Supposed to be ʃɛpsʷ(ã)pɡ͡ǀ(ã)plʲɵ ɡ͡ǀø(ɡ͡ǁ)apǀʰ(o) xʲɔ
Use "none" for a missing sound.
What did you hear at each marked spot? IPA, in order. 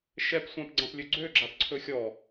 ã, ã, ɡ͡ǁ, ɵ

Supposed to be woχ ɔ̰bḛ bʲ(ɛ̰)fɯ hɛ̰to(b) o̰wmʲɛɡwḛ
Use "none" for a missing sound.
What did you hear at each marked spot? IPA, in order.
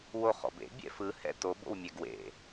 ɛ̰, b

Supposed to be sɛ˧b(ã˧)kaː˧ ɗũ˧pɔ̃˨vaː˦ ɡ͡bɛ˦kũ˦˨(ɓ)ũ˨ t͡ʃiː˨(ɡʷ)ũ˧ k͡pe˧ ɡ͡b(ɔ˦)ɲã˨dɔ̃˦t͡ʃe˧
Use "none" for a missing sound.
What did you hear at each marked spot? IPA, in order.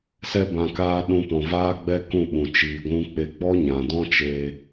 ã˨, ɓ, ɡʷ, ɔ˦

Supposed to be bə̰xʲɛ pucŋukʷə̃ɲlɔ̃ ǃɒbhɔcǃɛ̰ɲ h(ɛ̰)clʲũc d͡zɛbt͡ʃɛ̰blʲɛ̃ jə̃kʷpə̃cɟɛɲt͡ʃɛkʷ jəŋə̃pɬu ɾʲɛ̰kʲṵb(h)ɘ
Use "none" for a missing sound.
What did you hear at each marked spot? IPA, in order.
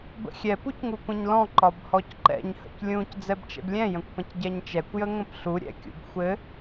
ə̰, xʷ

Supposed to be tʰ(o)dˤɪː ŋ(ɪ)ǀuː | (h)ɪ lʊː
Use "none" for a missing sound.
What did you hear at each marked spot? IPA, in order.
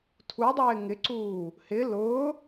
u, ɪ, h

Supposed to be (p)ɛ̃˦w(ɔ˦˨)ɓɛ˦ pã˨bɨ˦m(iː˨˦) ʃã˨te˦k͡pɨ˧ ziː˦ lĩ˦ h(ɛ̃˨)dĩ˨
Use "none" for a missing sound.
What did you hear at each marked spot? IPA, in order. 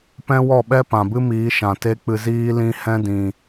p, ɔ˦˨, iː˨˦, ɛ̃˦

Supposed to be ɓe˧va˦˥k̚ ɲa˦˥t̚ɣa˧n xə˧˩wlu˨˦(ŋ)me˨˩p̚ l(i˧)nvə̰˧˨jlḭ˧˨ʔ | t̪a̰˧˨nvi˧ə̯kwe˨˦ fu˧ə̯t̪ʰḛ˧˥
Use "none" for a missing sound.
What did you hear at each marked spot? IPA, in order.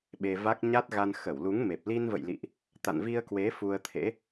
ŋ, i˧

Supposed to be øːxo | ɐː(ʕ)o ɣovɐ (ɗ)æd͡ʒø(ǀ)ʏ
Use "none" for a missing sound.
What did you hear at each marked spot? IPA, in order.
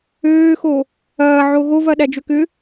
ʕ, ɗ, k

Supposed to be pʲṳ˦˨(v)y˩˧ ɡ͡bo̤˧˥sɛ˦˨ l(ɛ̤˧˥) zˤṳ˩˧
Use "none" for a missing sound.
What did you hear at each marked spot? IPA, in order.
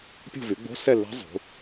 v, ɛ̤˧˥

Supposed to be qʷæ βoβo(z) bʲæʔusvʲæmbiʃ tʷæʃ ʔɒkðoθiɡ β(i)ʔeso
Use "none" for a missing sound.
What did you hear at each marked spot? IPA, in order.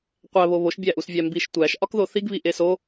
ʃ, i

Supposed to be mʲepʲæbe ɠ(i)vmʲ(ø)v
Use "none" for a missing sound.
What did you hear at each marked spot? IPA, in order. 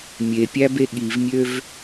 i, ø

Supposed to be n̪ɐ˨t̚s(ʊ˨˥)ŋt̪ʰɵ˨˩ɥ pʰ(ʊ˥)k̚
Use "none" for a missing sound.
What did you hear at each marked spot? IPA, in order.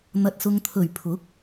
ʊ˨, ʊ˨˥

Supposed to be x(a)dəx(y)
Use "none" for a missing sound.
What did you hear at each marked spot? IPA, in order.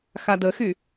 a, y

